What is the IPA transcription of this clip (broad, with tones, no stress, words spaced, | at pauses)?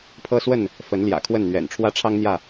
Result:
pʰɤ˦swə˥˨n | fə˨˦nljä̰˨˩ kʰwə˥˨nn̪ɥɛ̰˨˩n ʈ͡ʂʰwä˦ʈ͡ʂʰɑ˦ŋn̪jä˥˨